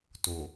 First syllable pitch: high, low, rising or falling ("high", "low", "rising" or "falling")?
low